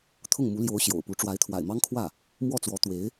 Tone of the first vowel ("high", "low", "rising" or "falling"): falling